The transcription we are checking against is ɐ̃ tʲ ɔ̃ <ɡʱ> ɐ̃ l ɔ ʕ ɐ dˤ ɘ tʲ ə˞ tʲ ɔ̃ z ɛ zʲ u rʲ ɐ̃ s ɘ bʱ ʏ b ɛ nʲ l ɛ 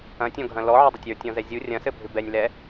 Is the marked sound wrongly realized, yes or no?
no